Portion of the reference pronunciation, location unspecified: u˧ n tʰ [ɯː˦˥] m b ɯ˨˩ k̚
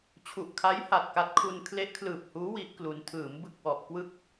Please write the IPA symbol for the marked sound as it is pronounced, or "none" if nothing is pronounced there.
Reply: ɯː˩˦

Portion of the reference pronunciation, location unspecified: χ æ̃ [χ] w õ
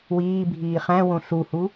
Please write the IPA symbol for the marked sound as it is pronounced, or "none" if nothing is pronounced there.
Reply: none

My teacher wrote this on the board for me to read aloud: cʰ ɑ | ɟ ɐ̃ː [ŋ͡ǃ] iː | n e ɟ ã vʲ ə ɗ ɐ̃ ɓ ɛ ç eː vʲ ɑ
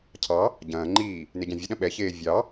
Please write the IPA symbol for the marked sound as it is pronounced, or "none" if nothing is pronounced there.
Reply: ŋ͡ǃ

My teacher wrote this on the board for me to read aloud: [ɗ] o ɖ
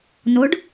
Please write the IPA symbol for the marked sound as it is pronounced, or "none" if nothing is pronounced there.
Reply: n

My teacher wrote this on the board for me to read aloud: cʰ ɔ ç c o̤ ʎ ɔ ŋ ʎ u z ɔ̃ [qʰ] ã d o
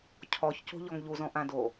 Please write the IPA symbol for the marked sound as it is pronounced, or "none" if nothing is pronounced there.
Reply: ʔ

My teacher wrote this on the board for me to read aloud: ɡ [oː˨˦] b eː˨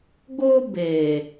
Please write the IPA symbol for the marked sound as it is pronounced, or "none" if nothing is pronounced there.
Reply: oː˦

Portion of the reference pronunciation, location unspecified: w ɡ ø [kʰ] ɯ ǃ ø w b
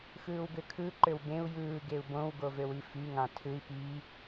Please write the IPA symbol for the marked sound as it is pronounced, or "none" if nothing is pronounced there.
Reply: kʰ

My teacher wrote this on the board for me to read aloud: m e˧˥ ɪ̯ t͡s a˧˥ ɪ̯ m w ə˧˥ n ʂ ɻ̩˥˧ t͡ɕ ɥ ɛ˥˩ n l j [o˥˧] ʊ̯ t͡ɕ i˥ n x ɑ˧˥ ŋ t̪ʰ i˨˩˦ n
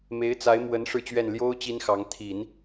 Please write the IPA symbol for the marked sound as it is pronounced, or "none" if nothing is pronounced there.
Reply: o˥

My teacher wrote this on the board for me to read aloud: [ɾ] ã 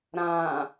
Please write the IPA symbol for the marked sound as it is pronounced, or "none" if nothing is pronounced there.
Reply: ɾ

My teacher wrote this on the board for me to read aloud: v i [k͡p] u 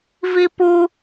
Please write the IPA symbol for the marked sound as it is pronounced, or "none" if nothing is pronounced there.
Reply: p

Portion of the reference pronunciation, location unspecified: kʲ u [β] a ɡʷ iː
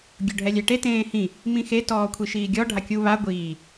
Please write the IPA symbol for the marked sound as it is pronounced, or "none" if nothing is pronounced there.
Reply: β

